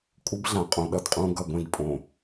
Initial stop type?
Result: ejective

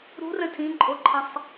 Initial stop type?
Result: aspirated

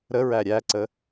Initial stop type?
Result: click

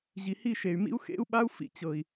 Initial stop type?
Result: implosive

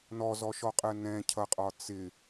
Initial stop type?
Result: ejective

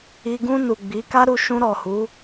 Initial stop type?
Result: plain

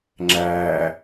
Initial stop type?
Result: click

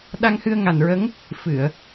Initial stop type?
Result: implosive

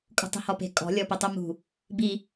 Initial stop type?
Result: ejective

